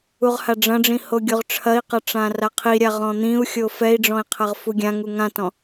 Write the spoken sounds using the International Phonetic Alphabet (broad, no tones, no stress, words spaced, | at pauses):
uʁhaɖ͡ʐɐ̃ɖ͡ʐĩ hoɡʲoʁʈ͡ʂʰɐi̯qɐ ʈ͡ʂãraqʰiɾʲa ʁɔ̃n̪ĩu̯xʲo fɛi̯ɖ͡ʐɔ̃i̯ qʰɐʁfuɡʲãŋu ŋãtɔ̃